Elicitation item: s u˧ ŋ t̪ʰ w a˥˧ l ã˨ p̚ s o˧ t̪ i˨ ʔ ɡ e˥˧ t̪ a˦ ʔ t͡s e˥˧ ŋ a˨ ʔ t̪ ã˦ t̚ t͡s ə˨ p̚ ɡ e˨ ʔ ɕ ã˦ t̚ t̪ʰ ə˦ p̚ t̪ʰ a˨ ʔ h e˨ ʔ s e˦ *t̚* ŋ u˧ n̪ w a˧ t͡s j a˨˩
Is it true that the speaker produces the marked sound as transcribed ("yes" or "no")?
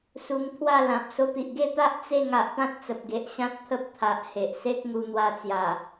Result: no